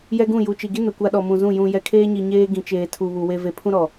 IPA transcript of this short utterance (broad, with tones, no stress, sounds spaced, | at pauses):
j ɛ˦ ɡ ũ˦˨ j u˨ t͡ʃ i˨ ɡ i˦ n ʊ˨ kʷ a˦ ɗ ɔ˨ m ũ˨ z ũ˦˨ j ũ˨ j ɛ˨ kʰ eː˦ ɲ i˨ ɲ eː˦ ɡ ĩ˨ t͡ʃ eː˨ tʰ u˨ β u˨ w e˨ v e˨ pʰ ũ˦ ɾ ɔ˨